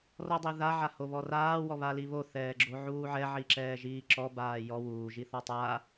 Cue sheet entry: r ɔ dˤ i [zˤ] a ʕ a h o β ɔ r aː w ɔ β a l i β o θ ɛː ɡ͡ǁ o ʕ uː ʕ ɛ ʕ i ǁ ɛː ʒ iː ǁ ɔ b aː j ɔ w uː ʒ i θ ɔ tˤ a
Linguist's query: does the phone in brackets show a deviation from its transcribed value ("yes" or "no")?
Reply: yes